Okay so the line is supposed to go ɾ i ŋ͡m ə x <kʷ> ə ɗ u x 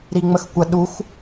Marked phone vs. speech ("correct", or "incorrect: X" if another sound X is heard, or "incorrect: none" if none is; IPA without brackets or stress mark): correct